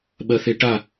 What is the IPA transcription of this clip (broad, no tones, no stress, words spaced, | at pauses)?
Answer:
ɓɜθeʈa